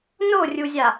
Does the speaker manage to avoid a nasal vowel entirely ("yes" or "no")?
yes